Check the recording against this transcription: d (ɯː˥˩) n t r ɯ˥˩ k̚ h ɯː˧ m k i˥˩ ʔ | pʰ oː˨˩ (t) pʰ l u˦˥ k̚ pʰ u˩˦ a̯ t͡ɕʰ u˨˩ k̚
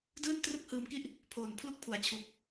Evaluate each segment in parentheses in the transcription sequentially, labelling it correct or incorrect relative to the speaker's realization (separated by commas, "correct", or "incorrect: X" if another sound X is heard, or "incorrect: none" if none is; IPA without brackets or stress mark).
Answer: correct, incorrect: n